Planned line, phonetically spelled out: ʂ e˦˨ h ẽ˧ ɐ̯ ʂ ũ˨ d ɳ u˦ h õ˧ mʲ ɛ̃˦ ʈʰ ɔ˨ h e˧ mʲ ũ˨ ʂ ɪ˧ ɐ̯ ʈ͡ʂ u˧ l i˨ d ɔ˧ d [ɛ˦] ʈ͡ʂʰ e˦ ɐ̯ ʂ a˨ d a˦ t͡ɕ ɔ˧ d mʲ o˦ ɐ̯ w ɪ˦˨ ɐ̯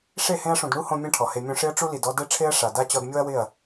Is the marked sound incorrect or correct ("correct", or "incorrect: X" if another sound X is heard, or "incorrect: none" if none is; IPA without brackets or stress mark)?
correct